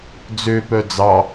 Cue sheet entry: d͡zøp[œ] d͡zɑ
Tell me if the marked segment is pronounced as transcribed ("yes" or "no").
yes